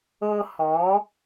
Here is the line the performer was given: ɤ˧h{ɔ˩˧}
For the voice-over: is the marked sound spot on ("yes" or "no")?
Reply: yes